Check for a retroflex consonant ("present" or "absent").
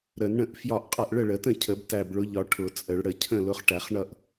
present